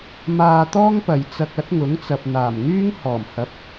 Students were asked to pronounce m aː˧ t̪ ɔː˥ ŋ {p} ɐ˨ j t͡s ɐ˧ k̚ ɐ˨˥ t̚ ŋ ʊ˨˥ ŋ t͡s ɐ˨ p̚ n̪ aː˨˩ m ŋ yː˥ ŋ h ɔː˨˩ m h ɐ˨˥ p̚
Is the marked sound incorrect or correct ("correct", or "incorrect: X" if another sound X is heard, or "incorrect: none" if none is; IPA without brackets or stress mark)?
correct